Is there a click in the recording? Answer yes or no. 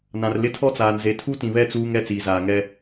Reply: no